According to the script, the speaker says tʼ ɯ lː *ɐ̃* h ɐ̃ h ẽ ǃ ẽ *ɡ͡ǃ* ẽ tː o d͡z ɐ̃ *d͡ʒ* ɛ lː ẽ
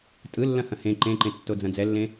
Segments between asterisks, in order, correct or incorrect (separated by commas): correct, incorrect, incorrect